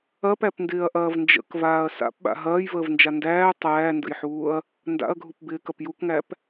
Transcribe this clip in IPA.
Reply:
ɐ p æ p n d ɪː ɐ̯ ʔ ɐː v n d͡ʒ ə̰ k v aː ɐ̯ s a̰ p ɓ a̰ ɦ ɐː j v əː v n d͡ʒ a n d æː tˤ æː n d ə̰ j ħ uː ɐ̯ | n d a̰ ɐ̯ ɡʱ u p b ɪː k ɐ p j u k ŋ æ p

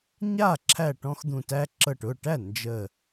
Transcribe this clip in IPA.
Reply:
ɲ a˥˩ ǁʰ æ˥˩ ʈ ɔ̃˦ x d̪ ũ˧˩ t æ˦ ǁ ɤ˧˩ ʈ ʊ˥˩ ʈ æ˥˩ n d͡ʒ ə˧˩

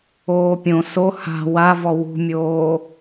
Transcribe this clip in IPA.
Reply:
oː pʲ õ s o h a̤ w a v ɔ w ṳ mʲ oː

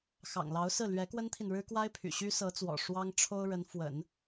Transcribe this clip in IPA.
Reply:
x ɑ̰˨˩ ŋ l ɑ˧˥ ʊ̯ s ɹ̩˥˩ l ɥ ɛ˧˥ k w ə˥ n t̪ʰ i˨ n ɻ ɻ̩˥ k w a˥ ɪ̯ pʰ y̰˨˩ ɕ y˥ s ɤ˧˥ t͡s w ɔ̰˨˩ ʂ w ɑ˥ ŋ ʈ͡ʂʰ o˥ ʊ̯ ɻ ə˧˥ n f w ə̰˨˩˦ n

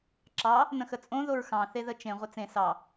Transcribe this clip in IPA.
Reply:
ǁ ɑ | n ə̃ x ə t͡sʼ õ ð o ɹ x ɑ̃ θ e ð ə t͡ʃ ẽ ʁʷ ɘ t͡s ẽ s ɑ

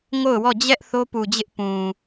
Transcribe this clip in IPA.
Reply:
ŋ o˦˨ ʊ̯ w ɔ˦˨ d͡ʑ ɛ˦ ʔ θ o˦ p u˨ d͡ʑ ɪ˦ ʔ p ũ˨

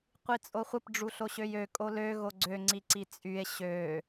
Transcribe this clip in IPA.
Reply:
qʷ i t͡sʼ o χʷ ə p ɖ͡ʐ u ɬ o ɕ ø j ø kʼ o l ø ɣ o ɡ͡ǀ ø ŋ͡ǀ i ǀ i t͡sʼ y e̯ ɕ ø

